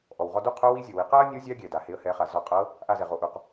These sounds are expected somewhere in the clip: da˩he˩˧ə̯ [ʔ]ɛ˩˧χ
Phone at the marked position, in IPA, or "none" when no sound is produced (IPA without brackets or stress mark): h